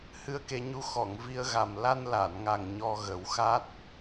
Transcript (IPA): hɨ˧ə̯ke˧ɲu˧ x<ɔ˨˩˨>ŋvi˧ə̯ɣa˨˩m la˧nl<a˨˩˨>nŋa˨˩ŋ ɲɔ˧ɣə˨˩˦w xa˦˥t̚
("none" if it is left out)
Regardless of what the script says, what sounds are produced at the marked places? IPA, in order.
ɔ˨˩˨, a˨˩˨

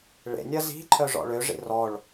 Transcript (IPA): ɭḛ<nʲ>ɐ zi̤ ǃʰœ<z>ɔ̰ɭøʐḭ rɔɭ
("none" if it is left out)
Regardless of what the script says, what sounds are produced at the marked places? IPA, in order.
nʲ, ʐ

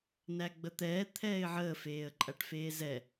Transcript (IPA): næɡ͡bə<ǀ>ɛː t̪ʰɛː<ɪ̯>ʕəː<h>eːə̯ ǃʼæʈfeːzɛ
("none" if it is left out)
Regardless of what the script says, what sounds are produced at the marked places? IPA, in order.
t̪, ɪ̯, f

